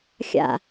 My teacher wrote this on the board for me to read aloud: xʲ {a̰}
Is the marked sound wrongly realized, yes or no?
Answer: no